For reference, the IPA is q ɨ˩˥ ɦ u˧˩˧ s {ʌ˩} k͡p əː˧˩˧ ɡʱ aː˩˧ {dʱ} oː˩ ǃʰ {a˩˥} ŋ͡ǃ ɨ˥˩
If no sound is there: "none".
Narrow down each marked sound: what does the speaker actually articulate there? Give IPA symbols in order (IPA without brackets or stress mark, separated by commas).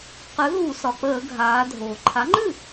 ɒ˩, dʱ, a˩˥